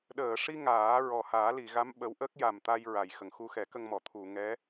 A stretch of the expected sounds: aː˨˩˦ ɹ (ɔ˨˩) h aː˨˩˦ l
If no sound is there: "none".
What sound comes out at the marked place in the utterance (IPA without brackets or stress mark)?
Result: ɔ˨˩